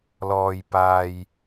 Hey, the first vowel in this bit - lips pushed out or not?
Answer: yes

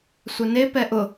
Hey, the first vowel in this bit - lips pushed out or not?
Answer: yes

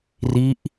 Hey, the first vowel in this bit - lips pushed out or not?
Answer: no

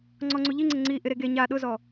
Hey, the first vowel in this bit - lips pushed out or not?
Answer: yes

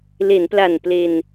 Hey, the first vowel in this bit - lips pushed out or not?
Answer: no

